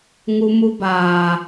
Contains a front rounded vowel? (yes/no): no